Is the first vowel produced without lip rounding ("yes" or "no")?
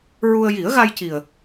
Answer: no